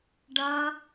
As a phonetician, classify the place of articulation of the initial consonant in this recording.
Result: retroflex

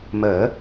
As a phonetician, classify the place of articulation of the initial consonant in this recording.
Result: labial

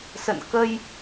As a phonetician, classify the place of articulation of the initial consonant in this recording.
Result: alveolar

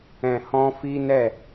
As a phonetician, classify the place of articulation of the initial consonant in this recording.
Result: glottal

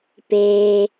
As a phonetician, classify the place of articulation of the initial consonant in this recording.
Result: labial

